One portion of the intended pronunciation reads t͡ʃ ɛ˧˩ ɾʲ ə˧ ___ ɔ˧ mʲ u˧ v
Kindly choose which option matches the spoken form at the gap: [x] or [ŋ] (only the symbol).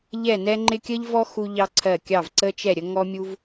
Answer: ŋ